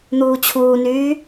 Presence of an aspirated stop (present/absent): present